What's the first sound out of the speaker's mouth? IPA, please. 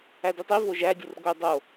æ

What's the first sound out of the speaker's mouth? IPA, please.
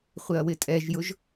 χʷ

